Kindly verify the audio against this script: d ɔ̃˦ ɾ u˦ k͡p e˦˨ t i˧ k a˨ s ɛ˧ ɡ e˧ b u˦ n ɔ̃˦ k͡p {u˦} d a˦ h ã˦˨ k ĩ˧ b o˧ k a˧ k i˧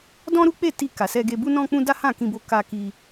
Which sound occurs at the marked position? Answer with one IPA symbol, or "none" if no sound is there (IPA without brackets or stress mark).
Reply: ũ˦